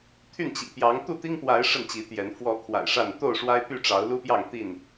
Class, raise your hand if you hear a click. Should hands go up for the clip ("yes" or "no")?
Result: no